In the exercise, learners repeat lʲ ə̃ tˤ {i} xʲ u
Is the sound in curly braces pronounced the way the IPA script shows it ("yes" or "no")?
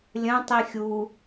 yes